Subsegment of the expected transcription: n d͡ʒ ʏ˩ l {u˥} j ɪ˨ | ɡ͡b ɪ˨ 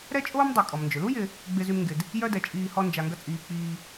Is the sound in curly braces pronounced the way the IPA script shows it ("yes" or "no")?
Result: yes